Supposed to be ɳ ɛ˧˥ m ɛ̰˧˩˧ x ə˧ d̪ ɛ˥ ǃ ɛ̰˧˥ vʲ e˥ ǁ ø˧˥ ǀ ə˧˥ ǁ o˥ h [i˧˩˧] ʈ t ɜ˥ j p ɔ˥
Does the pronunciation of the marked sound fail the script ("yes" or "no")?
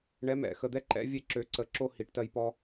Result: yes